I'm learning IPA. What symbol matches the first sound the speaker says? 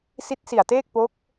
s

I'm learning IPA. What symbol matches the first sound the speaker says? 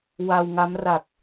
w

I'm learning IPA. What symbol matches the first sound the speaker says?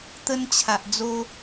t̪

